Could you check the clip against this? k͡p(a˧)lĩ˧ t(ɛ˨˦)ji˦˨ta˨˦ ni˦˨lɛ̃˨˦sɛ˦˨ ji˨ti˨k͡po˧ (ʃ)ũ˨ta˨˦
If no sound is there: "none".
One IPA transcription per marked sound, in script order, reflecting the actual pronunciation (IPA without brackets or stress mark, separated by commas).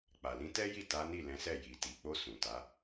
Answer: a˨, ɛ˦, s